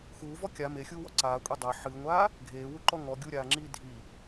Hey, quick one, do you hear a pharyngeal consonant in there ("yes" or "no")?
yes